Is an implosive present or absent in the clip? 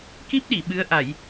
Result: present